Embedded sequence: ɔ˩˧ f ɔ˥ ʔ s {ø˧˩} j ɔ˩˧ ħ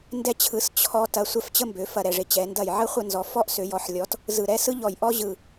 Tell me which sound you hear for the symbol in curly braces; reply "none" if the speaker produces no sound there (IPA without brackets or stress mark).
ø˩˧